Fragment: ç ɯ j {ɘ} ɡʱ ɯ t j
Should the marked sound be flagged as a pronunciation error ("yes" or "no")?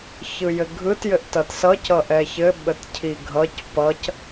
no